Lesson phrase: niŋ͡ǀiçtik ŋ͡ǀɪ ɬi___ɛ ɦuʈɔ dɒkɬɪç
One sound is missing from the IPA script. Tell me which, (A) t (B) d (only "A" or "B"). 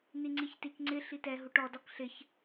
A